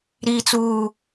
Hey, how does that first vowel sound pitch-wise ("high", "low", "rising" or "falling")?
low